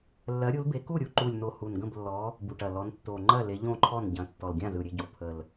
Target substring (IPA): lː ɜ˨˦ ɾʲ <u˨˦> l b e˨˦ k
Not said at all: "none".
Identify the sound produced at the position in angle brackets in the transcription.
u˨˦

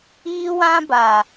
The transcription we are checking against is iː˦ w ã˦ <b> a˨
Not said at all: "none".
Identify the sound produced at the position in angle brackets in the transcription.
b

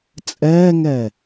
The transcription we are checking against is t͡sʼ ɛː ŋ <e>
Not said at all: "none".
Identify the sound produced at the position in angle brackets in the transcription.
ɛ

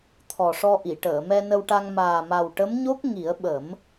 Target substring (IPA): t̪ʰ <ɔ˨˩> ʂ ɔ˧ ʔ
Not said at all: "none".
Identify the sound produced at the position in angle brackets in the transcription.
ɔ˨˩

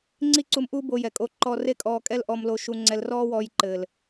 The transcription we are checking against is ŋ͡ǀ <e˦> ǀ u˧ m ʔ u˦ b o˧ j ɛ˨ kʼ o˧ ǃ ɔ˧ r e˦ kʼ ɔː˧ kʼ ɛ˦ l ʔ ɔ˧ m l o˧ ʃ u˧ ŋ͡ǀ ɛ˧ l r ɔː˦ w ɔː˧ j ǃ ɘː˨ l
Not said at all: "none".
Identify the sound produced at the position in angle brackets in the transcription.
i˦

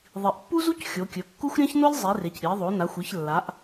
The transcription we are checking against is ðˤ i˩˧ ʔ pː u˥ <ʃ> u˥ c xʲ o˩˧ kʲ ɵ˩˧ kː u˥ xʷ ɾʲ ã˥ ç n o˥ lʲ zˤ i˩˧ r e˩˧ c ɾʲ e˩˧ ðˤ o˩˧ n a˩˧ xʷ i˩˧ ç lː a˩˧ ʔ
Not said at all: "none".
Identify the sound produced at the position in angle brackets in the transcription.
z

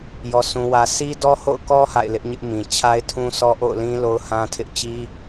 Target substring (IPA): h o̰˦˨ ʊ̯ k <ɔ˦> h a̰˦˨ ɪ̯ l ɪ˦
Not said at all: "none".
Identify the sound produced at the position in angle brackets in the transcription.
ɔ˦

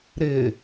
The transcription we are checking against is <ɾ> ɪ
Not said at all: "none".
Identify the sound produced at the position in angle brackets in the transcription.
ɾ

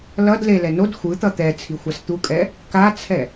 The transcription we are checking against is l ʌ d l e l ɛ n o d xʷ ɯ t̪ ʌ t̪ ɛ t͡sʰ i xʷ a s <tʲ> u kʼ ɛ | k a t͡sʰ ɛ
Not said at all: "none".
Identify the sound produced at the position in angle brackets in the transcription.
t̪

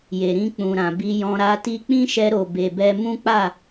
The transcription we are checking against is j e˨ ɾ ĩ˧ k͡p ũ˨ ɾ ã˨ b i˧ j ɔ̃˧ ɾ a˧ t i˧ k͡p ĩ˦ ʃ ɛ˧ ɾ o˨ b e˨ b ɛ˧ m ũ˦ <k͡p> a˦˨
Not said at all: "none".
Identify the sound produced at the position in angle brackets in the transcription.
k͡p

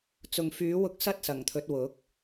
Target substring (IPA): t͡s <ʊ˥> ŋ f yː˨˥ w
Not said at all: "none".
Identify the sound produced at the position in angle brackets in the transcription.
ʊ˨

